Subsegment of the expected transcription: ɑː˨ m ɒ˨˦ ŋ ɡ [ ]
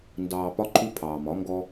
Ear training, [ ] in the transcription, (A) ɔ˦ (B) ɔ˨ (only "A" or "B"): A